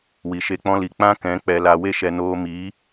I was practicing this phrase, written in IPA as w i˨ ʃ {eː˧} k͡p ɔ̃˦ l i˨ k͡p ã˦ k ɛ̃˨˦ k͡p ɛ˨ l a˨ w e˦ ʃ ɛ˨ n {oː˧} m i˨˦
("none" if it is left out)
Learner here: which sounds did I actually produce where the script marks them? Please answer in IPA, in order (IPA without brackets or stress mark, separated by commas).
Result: e˧, oː˧